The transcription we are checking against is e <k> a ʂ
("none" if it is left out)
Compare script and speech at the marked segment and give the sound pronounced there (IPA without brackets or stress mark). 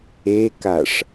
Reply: k